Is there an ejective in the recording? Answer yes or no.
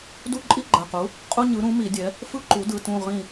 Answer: yes